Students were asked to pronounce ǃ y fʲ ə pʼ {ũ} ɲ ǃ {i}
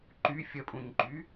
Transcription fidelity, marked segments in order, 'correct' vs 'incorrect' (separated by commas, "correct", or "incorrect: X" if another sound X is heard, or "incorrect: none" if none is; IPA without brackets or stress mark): correct, incorrect: y